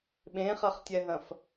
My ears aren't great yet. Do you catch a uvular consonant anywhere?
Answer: yes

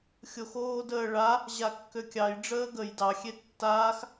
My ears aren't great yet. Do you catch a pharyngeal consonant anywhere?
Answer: no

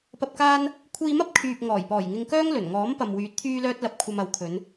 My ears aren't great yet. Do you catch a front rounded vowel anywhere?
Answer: yes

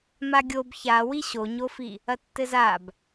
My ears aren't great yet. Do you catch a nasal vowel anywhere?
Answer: no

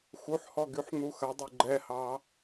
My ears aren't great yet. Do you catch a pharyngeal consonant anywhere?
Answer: yes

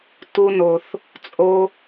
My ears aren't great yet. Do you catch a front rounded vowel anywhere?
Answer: no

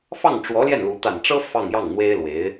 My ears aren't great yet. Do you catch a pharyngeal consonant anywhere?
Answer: no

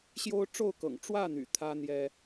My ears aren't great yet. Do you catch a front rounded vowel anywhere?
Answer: yes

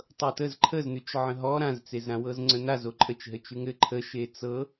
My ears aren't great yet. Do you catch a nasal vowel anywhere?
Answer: yes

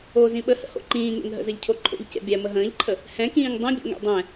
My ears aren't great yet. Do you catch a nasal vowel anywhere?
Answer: yes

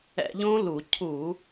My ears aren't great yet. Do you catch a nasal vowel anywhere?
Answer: yes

